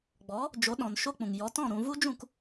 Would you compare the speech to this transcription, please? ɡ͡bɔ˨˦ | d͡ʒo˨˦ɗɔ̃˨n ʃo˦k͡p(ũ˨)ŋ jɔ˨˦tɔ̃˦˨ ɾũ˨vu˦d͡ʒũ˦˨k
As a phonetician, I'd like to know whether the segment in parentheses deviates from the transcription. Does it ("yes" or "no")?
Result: no